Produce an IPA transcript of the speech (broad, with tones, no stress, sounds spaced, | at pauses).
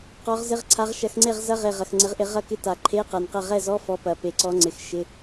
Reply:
q ɔ˨˦ ʁ z ɪ˧˥˧ ʁ ǀʰ a˨˦ ʁ ʃ ɐ˨˦ x ŋ͡ǀ e˥˧ ʁ z ɐ˧˥˧ ʁ e˨˩ ʁ ɐ˨˩ x ŋ͡ǀ ɪ˨˦ ʁ ʔ ɪ˨˦ ʁ ɐ˥˧ k ɪ˧˥˧ t a˨˩ ǃʰ e˧˥˧ q ɐ˨˩ n q ɐ˥˧ ʁ ɛ˥˧ z ɔ˧˥˧ f ɔ˨˦ p ɐ˨˩ p e˨˩ ǀ ɔ˨˦ ŋ͡ǀ ɪ˨˩ x ʃ ɪ˧˥˧